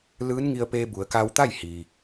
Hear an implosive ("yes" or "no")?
no